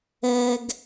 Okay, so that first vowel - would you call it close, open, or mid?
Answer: mid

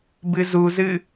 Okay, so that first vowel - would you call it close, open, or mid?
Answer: close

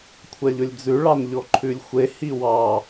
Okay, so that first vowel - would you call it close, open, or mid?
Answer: open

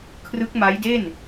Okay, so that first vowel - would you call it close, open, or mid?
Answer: close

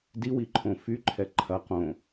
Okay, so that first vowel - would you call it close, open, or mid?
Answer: close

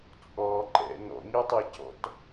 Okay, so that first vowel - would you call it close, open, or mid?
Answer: mid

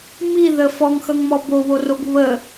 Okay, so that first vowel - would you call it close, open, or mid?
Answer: close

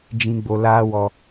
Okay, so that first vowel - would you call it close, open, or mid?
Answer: close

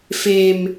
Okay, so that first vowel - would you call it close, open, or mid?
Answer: mid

